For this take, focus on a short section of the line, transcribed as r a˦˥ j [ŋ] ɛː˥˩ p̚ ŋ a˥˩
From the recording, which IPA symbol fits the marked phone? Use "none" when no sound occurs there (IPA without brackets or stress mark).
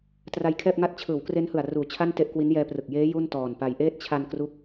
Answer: kʰ